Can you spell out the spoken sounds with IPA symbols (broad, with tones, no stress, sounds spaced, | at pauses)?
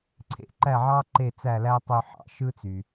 ǀʰ ḛ˥˩ ǃ æ˥˩ ʕ ɑ˥ ǃ e˥˩ t͡s æ˥˩ l æ˥ tˤ ø˧ ħ ɑ̰˩ ʃ ɯ˥ t͡s y˩